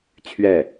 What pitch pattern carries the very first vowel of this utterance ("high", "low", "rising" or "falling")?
falling